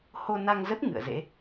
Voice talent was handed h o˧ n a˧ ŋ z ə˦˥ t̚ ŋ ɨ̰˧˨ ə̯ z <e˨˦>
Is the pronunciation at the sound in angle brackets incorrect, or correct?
incorrect